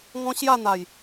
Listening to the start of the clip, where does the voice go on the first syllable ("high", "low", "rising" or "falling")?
high